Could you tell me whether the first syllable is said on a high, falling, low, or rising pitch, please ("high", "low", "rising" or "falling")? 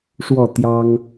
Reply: falling